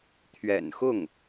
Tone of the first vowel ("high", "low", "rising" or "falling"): low